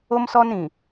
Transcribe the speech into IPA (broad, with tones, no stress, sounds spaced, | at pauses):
o˦ m s ɔ˦ n ɾ ĩ˨